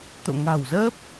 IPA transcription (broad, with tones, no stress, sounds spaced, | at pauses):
t̪ o̰˧˨ ŋ a̤˨˩ w z əː˦˥ p̚